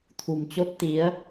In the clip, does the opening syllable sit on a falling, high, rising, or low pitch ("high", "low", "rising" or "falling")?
low